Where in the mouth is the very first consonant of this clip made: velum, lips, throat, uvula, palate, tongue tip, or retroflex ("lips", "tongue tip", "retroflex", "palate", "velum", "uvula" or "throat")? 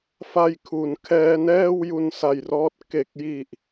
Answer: lips